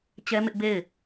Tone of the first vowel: high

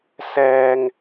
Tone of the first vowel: high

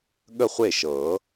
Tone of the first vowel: falling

